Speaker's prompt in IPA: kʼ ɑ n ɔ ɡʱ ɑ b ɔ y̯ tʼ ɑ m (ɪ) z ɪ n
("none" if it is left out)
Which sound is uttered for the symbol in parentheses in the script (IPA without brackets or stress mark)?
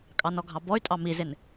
i